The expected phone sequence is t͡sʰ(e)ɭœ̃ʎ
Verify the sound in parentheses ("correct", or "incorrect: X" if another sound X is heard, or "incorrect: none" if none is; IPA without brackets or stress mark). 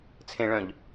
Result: incorrect: ẽ